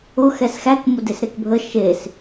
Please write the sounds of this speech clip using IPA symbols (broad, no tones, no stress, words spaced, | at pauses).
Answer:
ʊ xɛsxæk mʊdesɾekbʱə ʃes